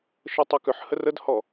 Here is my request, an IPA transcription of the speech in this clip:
ʃ ə tˤ ʊ k ʏ ħ h ə r ə d h ɔ

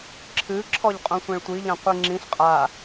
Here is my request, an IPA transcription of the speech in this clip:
ǁʰ ɨ ǁʰ ɔ ʎ qʼ õ sʷ ɛ̃ ɭ tʷ i ʎ ã qʷ i ŋ͡ǁ ĩ ɬ qʼ a

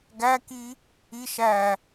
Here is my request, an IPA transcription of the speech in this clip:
ɡ æ k i | i ʃ æ

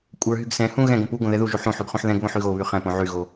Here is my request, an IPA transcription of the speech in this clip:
kʷʼ ə˞ ɦ y ɡ s ɛ̃ h ũ ɣ ɛ̃ ɡ õ p u ɡ õ ð ɛ ð u ʒ u ħ ũ ħ y ɡ χ ũ ħ ð ɛ̃ ɡ β õ ħ y ɣ o β y χ ɛ̃ p õ ʕ y ɣ o

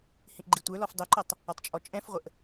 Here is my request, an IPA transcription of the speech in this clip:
h ĩ ʔ ɡ͡ǃ i tʷ ə˞ l ɔ f dˤ ʊ ǃ ʊ tˤ | ɔ tˤ t͡ʃʼ ɔ t͡ʃʼ ɛ̃ f ʁʷ ə ʔ

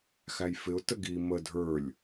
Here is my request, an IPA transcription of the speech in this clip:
x æ j f ɪ ʊ̯ t ə ɡ i m ə dʱ ə˞ lʲ

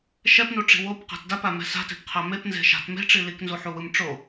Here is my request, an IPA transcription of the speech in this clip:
ʃ ɛ p n u ʈ͡ʂ i̤ w o p q a̤ t d a p a m ɛ̤ s a̤ t e̤ p qʰ a m e p n z e̤ ʃ a̤ t m e̤ ʈ͡ʂ i l i k n z u ħ u w ɯ m ʈ͡ʂ o

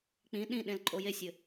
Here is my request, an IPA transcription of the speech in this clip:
k͡p ĩ ɗ ĩ ɗ ẽ l ǃʼ o j e sʲ ɘ

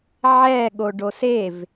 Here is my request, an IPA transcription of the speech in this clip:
ʕ ɛ ɠ o ɖ o s e v

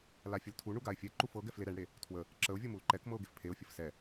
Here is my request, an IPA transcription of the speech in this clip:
l a fʲ ə l tʰ u ɳ u ɡ a ɪ̯ fʲ ɛ ǃ u f ɤ ɡ ɛ f l e ɾ ɛ ɳ ɽ e | tʰ w ə | ǁ ə ʊ̯ vʲ ɤ m u l ǃ ɛ k m ɤ ʊ̯ ɡ e f pʰ e ʊ̯ fʲ ə f s ɛ

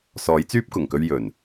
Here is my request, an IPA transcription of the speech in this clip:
s ɔː˨˥ j t͡s yː˥ p̚ k ʊ˨˩ ŋ k ɵ˧ ɥ j ɵ˨˩ n

